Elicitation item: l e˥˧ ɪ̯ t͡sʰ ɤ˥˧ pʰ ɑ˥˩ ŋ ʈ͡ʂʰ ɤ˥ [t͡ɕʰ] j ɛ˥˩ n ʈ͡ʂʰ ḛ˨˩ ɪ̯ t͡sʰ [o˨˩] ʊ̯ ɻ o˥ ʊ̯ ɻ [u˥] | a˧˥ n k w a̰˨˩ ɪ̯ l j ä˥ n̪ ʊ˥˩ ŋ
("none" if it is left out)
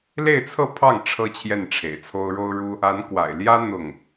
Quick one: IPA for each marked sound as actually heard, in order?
t͡ɕʰ, o˥, u˥

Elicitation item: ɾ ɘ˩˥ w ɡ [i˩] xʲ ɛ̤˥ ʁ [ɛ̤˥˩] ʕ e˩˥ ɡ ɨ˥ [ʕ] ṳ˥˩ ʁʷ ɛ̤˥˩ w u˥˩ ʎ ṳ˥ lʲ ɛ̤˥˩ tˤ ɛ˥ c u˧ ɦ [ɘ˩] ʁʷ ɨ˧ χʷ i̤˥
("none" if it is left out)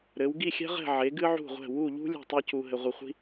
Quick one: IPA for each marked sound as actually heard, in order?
i˥˩, ɛ̤˥˩, ʕ, ɘ˧

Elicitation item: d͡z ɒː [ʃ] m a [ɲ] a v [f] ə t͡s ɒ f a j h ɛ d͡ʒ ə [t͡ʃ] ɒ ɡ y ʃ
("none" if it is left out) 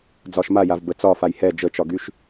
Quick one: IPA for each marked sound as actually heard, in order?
ʃ, j, b, t͡ʃ

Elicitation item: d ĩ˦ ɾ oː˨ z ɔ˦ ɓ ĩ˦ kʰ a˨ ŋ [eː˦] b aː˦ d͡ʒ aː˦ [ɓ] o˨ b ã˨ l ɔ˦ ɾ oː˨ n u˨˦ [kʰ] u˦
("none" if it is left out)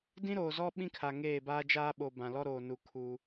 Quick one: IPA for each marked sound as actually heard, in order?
eː˦˨, ɓ, kʰ

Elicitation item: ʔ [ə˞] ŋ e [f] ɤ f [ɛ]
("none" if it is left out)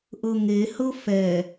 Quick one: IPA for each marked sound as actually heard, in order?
ɤ, h, ɛ

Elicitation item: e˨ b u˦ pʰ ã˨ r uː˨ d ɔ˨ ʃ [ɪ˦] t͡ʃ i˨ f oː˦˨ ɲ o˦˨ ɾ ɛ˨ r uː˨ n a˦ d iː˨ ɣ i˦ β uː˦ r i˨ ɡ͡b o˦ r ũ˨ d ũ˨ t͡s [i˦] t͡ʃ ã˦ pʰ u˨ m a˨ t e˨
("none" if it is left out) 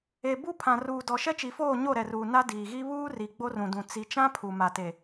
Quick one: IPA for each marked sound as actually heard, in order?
ɛ˦, i˨

